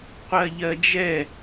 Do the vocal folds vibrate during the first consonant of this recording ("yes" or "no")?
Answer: no